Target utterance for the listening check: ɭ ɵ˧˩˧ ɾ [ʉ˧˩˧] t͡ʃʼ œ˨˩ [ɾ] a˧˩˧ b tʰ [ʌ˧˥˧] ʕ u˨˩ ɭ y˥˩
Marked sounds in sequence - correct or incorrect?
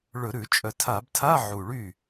correct, incorrect: tʰ, incorrect: a˧˥˧

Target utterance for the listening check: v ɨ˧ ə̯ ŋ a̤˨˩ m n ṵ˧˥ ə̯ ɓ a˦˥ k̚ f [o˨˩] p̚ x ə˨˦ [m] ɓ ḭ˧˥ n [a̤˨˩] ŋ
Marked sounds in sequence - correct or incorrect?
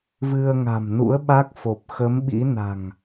correct, correct, correct

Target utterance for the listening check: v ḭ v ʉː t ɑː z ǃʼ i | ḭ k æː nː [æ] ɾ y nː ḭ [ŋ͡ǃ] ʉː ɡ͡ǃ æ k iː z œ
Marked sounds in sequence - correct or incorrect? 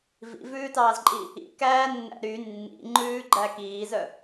incorrect: æ̰, correct

